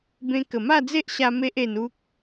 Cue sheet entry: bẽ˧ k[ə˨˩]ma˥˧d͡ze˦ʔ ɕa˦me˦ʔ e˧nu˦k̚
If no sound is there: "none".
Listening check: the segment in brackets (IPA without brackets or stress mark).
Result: ə˨˩